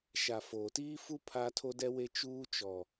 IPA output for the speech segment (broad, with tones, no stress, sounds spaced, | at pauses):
ʃ a˨ f oː˨ t iː˦ f u˦ pʰ a˦ tʰ o˦ d ɛ˦ w e˦ t͡ʃ uː˦ t͡ʃ ɔ˨